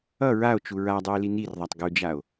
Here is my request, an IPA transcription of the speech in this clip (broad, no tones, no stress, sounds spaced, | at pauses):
ʌ ɹ a o̯ t͡ʃ u ɹ a dˤ u e̯ l i n i r ðˤ a tˤ ɡ u d͡ʒ a o̯